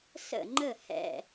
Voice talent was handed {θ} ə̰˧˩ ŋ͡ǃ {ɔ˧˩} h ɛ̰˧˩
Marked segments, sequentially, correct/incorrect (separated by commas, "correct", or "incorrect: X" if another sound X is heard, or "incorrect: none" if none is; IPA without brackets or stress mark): incorrect: s, incorrect: ə˧˩